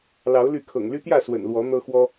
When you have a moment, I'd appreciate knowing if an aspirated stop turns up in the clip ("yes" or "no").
yes